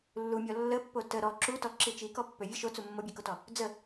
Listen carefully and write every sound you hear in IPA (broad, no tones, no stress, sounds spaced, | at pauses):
lː u mʲ ɔ lː ə pː o t ə ɾ ɔ ǁ u t ɔ ǁ i t͡ʃ i k ɔ pː ø vʲ ə ʃ o t͡s u mː o bʲ ø k o t ɔ | d͡z ə